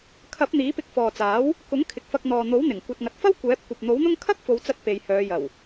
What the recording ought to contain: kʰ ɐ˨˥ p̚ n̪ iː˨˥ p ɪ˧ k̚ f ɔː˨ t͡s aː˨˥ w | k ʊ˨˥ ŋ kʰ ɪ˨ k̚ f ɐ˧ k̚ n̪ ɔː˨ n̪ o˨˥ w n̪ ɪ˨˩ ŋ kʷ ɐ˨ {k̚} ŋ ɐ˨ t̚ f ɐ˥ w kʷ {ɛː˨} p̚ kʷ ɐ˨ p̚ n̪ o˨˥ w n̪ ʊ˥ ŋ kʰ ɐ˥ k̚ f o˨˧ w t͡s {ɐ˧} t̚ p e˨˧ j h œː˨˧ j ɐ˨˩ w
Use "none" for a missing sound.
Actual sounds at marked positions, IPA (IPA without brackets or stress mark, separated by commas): t̚, ɛː˨˥, ɐ˧